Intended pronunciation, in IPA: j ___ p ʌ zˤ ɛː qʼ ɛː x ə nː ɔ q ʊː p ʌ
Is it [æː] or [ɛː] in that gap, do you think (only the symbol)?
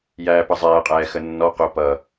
æː